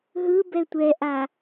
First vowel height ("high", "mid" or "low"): high